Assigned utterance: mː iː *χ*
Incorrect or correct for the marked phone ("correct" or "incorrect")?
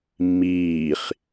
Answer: correct